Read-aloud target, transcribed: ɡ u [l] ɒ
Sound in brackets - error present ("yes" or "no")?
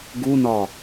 yes